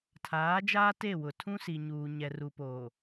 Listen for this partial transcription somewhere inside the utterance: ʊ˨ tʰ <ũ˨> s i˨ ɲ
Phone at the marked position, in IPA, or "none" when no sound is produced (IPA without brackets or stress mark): ũ˦